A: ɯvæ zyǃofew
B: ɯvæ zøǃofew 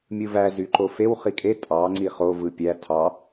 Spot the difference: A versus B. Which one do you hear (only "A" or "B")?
A